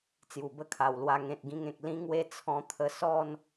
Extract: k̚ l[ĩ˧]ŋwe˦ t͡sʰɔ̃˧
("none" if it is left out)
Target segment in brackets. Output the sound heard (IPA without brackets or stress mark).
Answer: ĩ˦